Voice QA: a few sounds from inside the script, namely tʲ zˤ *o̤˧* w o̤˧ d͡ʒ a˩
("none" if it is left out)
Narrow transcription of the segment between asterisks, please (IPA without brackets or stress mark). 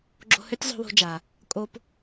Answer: o̤˧